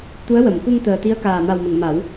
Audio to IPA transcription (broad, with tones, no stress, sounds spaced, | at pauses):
t̪ u˧˥ ə̯ w ə˨˩˨ m k u˧ ŋ t̪ əː˨˩ t̪ i˧˥ ə̯ k aː˨˩ m a˨˩ w m ə˨˩˨ ŋ m a˨˩˦ w